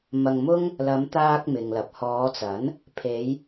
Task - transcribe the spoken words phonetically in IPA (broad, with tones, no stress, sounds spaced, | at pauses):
m ɐ˧ ŋ m ʊ˥ ŋ | l ɐ˨˧ m t̪ aː˧ k̚ m ɪ˨ ŋ l ɐ˨ p̚ h ɔː˨˧ t͡s ɐ˨˥ n | pʰ e˨˧ j